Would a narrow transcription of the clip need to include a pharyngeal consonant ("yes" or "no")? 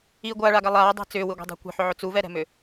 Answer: yes